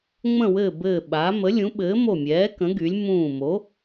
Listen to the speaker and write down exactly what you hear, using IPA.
ŋ͡m ə̃˦˨ w ɘː˦˨ b ɘː˦˨ ɓ aː˨˥ m ə˨˥ lʲ ũ˨˥ ɓ ɘː˨˥ m o˦˨ mʲ ɛː˨˥ k ə̃˨˥ ɡ y˨˥ lʲ m ũː˦˨ m o˨˥

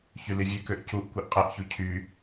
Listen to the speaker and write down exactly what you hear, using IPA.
ç y l i vʲ ø k ø ʔ c u ʔ kʷ i ʔ qʼ e ʔ ç u cʰ y

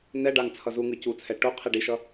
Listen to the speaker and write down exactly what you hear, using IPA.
n ɛ ɖ a ŋ t͡sʰ ʌ z u ŋ ɯ c u t͡sʰ ɛ ʈ o qʰ i ɖ i ʃ ʌ

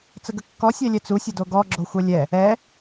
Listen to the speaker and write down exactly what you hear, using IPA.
t͡s ə ɡ ə kː ɔ sʲ ɛ lʲ ɛ t͡s u sʲ ə d o ɡ ɔ ɡ͡ǁ o xʷ ɛ lʲ ɛ | ɛ

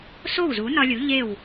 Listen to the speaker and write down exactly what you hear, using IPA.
s o˥˩ w z u˩˥ n ɒ˧ lʲ u˩˥ ʎ e˥˩ w

